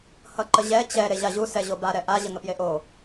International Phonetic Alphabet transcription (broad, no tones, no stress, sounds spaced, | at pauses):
h ʌ ǃ ə ʑ ɛ t͡ɕ ɛ ɾ e ʑ a ʑ u s ɛ ʑ o b a ɾ ɛ ʔ a ʑ ə ŋ ə p j e ʔ o